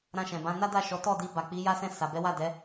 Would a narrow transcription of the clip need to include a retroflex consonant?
no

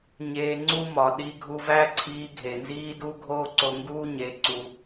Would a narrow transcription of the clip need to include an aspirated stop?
yes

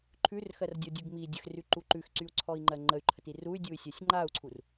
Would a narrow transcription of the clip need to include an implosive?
no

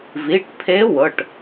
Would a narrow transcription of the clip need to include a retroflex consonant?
yes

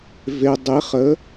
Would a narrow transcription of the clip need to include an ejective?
no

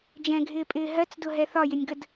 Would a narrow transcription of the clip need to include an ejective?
yes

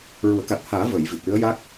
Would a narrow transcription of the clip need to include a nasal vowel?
no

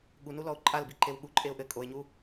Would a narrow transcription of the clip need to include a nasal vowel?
no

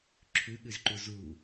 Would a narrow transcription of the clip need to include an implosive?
yes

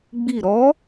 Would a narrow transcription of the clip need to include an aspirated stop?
no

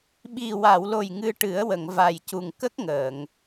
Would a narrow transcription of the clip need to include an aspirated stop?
no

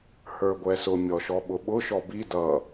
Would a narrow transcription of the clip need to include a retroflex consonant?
no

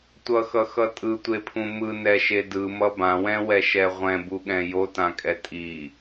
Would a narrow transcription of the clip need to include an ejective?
yes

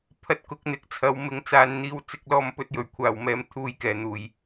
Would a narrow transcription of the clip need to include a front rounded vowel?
no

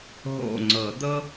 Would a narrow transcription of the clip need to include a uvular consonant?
no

